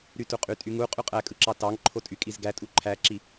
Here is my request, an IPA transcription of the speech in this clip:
ɾ y t u qʼ y tʼ y ŋ u qʼ y qʼ æ kʼ ɯ ǁ ɑ t ɑ ŋ ǃʰ o tʼ y kʼ i z ɡ æ tʼ u ǃʰ æ ǁ i

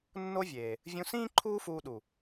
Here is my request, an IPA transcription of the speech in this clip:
nː o˦ vʲ eː˨ | vʲ ũ˧ s ĩː˦ ǃʰ uː˦ f uː˧ ɗ u˨

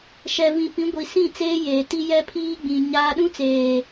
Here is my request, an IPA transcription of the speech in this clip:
ʃ ɛ˨ v ĩ˨ p ĩ˨˦ ɡʷ i˨ s ĩ˦˨ t͡s eː˦ j eː˨ t i˦ j ɛ˦ pʰ iː˦ ɡ͡b ĩ˨ ɲ a˦ ɗ ũ˦ t͡s eː˨

